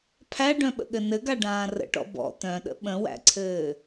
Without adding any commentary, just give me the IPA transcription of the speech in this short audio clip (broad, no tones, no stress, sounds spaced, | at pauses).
pʰ æ ɖ œ̃ ɓ ə̰ ɠ ɘ n ɘ ɡ a ɖ ãː r ə̰ ʈ ɔ̰ b ɔ̰ t̪ œ̃ ɗ ə̰ ɓ ə̃ w æ̰ ǀʰ ɘː